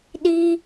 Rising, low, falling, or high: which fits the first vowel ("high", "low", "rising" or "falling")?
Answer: high